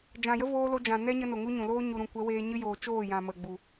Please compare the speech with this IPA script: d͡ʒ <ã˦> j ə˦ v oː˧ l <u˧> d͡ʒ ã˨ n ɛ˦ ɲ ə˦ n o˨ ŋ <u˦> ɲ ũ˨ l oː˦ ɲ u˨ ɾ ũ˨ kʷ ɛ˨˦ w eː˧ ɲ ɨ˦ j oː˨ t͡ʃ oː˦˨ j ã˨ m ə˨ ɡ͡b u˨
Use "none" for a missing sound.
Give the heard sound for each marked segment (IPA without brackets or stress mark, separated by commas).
ã˨, o˧, u˦